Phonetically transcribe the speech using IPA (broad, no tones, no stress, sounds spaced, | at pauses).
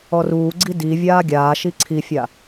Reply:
ɔ r uː ɡ͡ǀ i d i vʲ aː ɡʲ aː ʃ i ǀʰ i fʲ a